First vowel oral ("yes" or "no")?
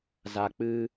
yes